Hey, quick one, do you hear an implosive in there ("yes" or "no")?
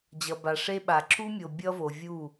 yes